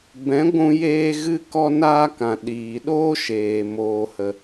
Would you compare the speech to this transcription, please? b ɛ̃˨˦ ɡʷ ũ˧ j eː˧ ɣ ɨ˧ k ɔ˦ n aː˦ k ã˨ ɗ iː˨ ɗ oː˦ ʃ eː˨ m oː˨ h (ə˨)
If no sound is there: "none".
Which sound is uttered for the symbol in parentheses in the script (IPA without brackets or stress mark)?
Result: ə˨